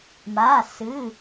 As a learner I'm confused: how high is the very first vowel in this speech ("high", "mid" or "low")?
low